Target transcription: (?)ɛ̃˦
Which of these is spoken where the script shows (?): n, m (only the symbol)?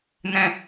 n